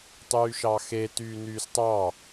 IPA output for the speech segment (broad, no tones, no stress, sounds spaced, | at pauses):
tˤ yː ʃ ɑ x e t yː n yː s tˤ ɑ